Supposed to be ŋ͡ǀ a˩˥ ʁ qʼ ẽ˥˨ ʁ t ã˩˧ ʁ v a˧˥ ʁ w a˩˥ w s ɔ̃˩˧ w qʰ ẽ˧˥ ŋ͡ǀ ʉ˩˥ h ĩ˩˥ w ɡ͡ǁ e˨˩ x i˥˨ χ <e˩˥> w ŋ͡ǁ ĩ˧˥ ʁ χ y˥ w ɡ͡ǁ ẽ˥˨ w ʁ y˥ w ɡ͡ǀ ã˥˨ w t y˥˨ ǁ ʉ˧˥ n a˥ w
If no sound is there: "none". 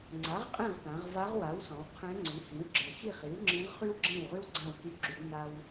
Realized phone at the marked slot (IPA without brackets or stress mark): i˩˥